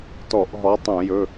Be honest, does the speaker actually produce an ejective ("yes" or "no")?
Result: no